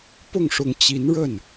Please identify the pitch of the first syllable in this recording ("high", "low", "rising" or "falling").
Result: falling